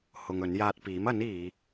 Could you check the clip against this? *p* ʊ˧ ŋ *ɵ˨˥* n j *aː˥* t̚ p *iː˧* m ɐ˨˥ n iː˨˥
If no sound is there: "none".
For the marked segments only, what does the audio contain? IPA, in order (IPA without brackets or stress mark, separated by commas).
h, ɵ˨˥, aː˧, iː˨˥